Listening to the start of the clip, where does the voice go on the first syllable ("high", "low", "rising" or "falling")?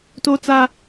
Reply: high